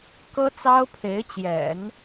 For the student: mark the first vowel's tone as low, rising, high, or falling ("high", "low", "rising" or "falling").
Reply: high